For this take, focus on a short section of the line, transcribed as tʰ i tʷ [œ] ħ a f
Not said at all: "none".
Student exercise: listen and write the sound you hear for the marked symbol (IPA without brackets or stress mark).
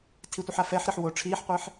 ə